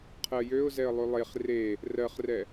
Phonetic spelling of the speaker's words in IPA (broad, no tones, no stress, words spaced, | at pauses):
qʰɜjøʊ̯zɛə̯lˠʉ lˠeχ re | rɜχrɛ